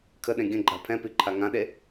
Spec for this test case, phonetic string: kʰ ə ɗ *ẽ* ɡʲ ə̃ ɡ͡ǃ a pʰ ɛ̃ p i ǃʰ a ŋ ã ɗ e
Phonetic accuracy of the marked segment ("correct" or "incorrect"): correct